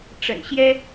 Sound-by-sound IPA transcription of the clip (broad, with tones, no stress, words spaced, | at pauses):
ʈ͡ʂə̰˨˩nɕjɛ˥